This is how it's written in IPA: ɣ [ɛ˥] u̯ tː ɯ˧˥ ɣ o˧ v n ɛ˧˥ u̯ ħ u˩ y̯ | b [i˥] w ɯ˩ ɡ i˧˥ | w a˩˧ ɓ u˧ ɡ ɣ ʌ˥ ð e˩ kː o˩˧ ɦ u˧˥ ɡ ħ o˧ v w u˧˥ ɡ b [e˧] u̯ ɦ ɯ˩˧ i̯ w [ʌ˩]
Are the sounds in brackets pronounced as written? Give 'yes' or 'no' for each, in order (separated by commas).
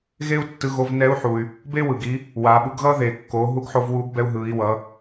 no, no, no, no